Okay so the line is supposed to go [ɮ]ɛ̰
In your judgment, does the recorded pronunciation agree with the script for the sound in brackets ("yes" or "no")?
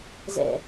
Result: no